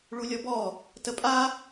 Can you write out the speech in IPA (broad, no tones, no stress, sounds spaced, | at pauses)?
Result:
ɭ u lʲ ɔ b ɔ | t ə pʼ a